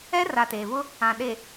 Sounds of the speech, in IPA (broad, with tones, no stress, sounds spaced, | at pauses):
ɛ˦ r a˨ t eː˨ v ʊ˦ | ã˨ ɗ e˨